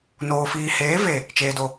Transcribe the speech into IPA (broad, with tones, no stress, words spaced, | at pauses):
noː˨fiː˨heː˨˦ ve˨ | t͡ʃeː˨do˨